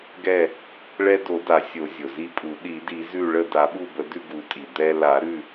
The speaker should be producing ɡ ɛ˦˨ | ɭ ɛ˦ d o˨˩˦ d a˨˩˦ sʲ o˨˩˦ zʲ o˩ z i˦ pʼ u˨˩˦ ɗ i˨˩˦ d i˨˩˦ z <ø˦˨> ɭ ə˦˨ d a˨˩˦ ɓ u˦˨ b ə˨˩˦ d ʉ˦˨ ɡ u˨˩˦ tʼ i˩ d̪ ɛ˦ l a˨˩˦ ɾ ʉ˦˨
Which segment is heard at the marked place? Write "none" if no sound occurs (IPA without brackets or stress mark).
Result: ʉ˦˨